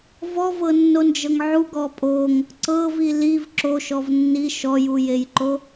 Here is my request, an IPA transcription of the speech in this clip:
v ɔ v ɤ nː o n d͡ʒ ɤ ŋ ʕ u ɡ ɔ pʼ o ŋ | ǀ ɤ v i l i v ǁ o ʃ ɔ v nː i ʃ ɔ j u j e j ǃ o

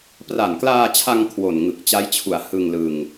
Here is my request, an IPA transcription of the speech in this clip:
p r a˨˩ n k l aː˧ t͡ɕʰ a˧ ŋ kʰ w o˨˩ n ŋ ɯ˨˩ k̚ t͡ɕ a˦˥ j t͡ɕʰ u˨˩ a̯ h ɯ˧ ŋ l ɯ˧ ŋ

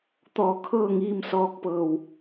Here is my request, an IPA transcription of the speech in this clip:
t̪ ɔː˧˩ kʰ ɤː˥˨ ŋ iː˧ m s ɔː˧ k̚ p ɤː˧˩ w

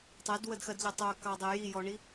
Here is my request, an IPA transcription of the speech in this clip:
tˤ ɛ d w ə d x ɜ d ʎ ɛ tˤ œ k ɑ dˤ e j i j ɔ ɳ i

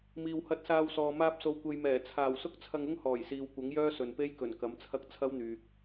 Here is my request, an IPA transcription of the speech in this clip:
m iː˨ w h ɐ˧ t̚ s aː˧ w s ɔː˨ m aː˧ p̚ s o˨˧ w kʷ e˨ j m ɛː˨˩ t͡sʰ aː˨˩ w s ʊ˥ k̚ t͡sʰ ɐ˧ ŋ ʊ˥ ŋ h ɔː˨˩ j s iː˨ w kʷ ɐ˨˥ ŋ j œː˥ s ɵ˨ n p e˥ j k ɵ˨˩ n k ɐ˨˥ m t͡sʰ ɐ˥ k̚ t͡sʰ ɐ˥ w n̪ yː˨ k̚

